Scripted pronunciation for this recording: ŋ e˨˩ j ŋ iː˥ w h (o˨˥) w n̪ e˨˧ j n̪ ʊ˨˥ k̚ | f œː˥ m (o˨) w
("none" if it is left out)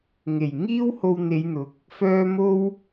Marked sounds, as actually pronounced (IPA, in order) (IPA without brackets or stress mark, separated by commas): o˧, o˥